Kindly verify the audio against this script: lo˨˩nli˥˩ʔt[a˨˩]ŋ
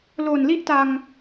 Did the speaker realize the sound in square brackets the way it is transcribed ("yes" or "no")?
no